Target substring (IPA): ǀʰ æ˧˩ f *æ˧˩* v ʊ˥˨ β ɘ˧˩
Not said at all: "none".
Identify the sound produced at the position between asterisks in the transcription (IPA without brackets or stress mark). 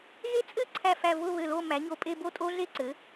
æ˧˩